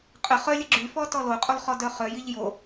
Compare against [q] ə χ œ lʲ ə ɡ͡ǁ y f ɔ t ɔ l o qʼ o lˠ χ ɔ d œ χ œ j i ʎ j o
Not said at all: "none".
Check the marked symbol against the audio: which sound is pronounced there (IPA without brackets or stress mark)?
qʼ